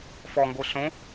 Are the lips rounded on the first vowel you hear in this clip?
yes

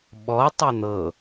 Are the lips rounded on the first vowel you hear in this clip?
yes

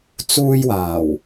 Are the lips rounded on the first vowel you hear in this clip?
yes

